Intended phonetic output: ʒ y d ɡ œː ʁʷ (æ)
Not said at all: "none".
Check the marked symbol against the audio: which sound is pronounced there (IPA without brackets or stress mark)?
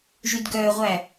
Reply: æ